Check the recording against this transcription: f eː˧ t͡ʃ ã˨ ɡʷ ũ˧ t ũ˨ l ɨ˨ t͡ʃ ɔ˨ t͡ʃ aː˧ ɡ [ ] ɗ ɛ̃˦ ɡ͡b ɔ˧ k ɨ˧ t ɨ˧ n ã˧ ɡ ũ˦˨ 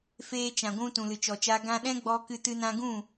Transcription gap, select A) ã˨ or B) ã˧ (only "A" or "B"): B